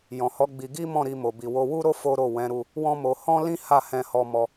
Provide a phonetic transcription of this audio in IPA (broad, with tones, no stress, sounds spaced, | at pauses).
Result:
j ɔ̃˨ h ɔ˨˦ ɡ͡b i˧ ɡ i˦ m ɔ̃˦˨ ɾ i˧ m o˨ b i˨ w o˧ w u˦ ɾ o˦ f o˦ ɾ o˦˨ w ɛ̃˨˦ ɾ u˧ | w ɔ̃˦ m o˧ h ɔ̃˦ l ĩ˦ h a˦˨ h ɛ̃˧ h ɔ˧ m ɔ˧